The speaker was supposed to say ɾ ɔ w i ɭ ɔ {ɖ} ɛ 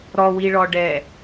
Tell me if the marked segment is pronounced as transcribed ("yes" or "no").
yes